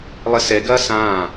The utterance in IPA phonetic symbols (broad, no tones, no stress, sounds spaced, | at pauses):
lˠ ɘ s ɛ ɡ ɐː s ãː